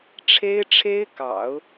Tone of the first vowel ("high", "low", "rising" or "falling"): high